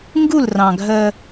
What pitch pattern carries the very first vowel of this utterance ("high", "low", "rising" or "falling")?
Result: falling